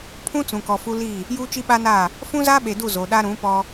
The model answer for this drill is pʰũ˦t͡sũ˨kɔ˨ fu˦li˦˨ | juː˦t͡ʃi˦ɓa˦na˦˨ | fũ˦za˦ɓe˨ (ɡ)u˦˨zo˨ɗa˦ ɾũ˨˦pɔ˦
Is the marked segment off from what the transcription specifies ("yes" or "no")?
yes